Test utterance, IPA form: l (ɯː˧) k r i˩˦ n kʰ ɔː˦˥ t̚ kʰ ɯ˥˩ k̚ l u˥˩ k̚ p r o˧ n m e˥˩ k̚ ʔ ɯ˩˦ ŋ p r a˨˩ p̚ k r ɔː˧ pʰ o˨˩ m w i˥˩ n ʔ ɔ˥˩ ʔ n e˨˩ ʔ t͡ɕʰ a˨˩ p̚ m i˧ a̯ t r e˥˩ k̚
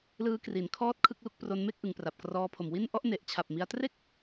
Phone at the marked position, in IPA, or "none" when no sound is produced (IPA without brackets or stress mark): ɯː˦˥